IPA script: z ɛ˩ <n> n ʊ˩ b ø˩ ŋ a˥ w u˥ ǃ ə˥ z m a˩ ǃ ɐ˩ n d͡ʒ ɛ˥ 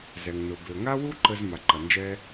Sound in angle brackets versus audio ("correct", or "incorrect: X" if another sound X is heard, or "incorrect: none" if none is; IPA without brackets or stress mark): incorrect: ŋ